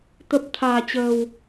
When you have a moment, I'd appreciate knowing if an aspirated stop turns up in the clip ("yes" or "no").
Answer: yes